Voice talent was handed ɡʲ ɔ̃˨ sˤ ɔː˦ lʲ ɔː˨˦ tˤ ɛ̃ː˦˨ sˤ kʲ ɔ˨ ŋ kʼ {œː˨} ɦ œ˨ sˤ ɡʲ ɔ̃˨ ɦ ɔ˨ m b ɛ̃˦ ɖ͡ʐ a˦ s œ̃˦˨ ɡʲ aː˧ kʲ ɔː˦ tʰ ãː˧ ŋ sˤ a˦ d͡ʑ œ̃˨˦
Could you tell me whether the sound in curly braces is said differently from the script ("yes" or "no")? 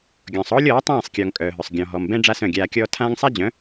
no